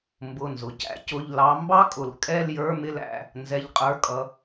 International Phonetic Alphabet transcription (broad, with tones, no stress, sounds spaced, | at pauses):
m b ʊ˩˧˩ n z ʊ˩ c æ̰˨˦ c ʊ˩˧˩ ʎ l ɑ˨˦ m b ɑ˥ kʼ ʊ˩ l kʼ ɛ˥˧ l j ə˞˧˥˧ m ɪ˥˧ l æ̰˩˧˩ | n z ɛ˨˦ ʎ qʼ ə˞˩˧˩ kʼ ʌ˨˦